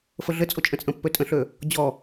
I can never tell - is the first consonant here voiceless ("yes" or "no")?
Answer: yes